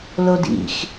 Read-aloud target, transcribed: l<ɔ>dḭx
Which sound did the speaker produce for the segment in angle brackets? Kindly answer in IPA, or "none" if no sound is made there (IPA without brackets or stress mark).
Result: o